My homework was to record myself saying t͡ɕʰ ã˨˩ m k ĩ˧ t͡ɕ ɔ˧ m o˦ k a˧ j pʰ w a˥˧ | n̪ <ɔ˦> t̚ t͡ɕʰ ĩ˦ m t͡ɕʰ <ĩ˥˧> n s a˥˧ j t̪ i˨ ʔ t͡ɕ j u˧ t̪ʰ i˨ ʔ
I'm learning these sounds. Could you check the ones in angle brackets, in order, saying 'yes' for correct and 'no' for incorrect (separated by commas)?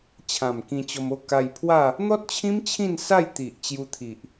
yes, yes